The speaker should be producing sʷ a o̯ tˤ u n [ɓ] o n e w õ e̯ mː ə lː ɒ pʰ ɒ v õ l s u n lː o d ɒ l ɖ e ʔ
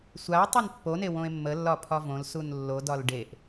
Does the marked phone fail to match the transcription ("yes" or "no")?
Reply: yes